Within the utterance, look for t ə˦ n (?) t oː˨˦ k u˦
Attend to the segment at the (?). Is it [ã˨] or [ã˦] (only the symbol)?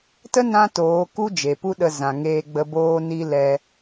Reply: ã˦